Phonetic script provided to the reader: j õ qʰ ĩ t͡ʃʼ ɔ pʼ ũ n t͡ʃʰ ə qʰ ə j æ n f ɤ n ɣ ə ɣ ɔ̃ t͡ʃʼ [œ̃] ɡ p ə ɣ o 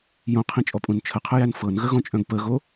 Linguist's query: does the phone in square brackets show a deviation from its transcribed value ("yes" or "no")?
no